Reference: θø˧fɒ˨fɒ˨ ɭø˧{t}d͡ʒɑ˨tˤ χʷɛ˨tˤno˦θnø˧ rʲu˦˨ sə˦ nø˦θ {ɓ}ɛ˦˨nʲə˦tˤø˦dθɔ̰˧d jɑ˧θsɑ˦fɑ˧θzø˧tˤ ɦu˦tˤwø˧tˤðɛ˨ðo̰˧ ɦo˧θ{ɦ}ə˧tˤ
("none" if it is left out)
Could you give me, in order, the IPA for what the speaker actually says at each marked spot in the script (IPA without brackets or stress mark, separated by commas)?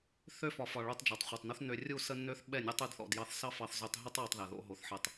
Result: tˤ, ɓ, ħ